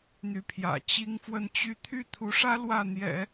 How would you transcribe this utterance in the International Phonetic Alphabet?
n̪y˧˥pʰjä̰˨˩ t͡ɕi˥ŋfwə˥˧nt͡ɕy˥˩ t̪ʰy˥t̪ʰu˧˥ʂä˥ lwä˥˩n̪jɛ̰˨˩˦

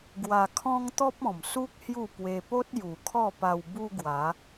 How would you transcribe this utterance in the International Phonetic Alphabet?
ɡwa˧kʰɔ̃˦ŋt̪ɔ˦p̚ɔ̃˨˩m su˦k̚ hju˥˧ pwe˧po˦t̚ ju˨˩kʰɔ˥˧pa˧wbu˦ ɡwa˨˦

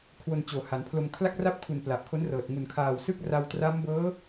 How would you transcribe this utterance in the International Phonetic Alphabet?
kʰwo˧nt͡ɕoː˨˩ha˩˦npʰlo˧m kʰla˥˩k̚ra˥˩p̚kʰu˨˩n pla˨˩ʔkʰo˦˥nrɤː˨˩t̚ ŋu˨˩nkʰaː˨˩w sɯ˥˩k̚ra˧w tra˦˥mbɤː˦˥

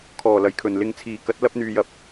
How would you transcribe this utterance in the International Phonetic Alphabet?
kʰɔː˨˩ lɐ˨˩jkʰɵ˨˩n lɪ˨ŋt͡sʰiː˨˩ kɐ˨˥t̚ lɐ˥p̚n̪yː˨jɐ˨˥p̚

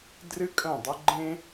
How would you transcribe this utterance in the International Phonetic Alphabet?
drɨ˦kʼœ̃˦˨dˤʏ˦ ɡ͡ǃẽ˦

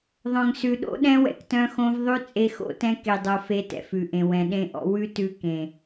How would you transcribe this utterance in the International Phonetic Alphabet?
ðˤœ̃˨ŋsʉ˨ ɗo̰˦ ɗɛ̃˦wɛ̰˨k tœ̃˧xõ˧v ðˤʉ˦t͡sʼe˧ xo̰˧tɛ̃˧ ke˨dˤo˨ fe˦tɛ̰˧fʉ˨ʔẽ˨ wɛ̃˨ɗẽ˦˨ ʔɔ̰˧ wʉ˦ tʉ˧ kẽ˨

